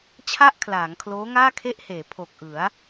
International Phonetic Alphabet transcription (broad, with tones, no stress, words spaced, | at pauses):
t͡ɕʰa˥˩ʔkʰlaː˩˦ŋkʰloː˦˥ŋaː˥˩ kʰe˥˩ʔheː˩˦ pʰo˨˩k̚ʔɯ˩˦a̯